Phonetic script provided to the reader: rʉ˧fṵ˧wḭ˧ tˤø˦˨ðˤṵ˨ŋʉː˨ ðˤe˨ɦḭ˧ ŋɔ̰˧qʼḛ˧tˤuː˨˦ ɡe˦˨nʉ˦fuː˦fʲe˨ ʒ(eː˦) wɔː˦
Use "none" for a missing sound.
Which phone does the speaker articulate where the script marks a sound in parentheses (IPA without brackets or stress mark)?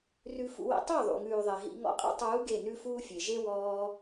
e˦